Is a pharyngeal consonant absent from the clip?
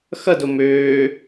yes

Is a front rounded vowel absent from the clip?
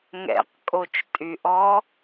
no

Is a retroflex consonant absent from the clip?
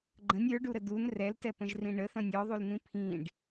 no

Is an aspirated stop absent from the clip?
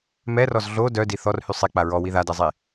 yes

